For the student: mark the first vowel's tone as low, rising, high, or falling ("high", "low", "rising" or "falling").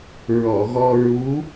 low